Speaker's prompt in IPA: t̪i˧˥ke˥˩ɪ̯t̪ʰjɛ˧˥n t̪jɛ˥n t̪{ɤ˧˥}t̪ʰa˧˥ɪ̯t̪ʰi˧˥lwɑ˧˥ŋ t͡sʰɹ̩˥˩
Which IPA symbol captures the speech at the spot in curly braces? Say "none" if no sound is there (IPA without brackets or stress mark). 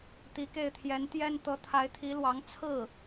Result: ɤ˧˥